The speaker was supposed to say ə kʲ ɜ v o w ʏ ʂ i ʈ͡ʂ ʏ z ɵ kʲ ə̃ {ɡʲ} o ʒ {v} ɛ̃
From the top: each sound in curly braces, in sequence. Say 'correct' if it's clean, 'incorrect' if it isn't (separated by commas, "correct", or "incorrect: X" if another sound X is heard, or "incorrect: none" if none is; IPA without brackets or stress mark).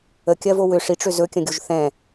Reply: correct, incorrect: θ